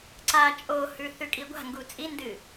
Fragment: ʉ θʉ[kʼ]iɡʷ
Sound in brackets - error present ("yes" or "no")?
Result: no